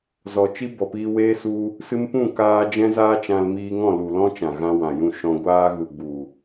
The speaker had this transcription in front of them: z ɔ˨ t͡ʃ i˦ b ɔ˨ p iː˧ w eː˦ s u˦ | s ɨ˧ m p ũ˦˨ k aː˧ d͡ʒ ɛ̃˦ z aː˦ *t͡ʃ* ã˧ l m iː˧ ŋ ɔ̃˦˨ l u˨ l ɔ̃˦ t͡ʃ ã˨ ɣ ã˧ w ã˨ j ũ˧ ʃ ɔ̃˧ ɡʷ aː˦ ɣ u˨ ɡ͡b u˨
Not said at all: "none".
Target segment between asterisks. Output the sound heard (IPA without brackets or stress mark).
t͡ʃ